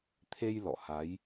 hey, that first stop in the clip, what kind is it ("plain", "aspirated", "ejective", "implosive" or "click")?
aspirated